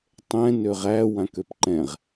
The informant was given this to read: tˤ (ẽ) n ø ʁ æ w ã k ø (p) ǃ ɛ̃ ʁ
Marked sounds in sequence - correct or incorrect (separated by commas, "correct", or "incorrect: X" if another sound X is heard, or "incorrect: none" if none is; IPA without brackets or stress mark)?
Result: incorrect: ɛ̃, correct